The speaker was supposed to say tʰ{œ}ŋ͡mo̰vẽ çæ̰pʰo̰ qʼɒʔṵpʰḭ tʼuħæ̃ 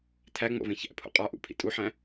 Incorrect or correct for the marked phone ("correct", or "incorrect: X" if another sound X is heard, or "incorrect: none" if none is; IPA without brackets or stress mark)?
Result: incorrect: æ